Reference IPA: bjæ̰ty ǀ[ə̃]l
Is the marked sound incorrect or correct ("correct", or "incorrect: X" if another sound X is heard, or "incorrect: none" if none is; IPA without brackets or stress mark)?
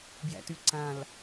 incorrect: ã